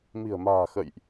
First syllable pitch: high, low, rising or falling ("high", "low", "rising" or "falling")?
low